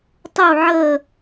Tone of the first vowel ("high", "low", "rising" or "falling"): falling